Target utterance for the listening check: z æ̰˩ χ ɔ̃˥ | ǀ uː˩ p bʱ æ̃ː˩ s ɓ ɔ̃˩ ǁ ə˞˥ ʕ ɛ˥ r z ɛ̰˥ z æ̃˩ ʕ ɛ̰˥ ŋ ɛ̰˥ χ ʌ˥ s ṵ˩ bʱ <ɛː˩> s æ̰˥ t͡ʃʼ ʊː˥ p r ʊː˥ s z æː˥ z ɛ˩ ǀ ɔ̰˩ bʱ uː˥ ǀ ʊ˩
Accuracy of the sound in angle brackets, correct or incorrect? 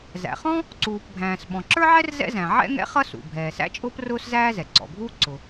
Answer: correct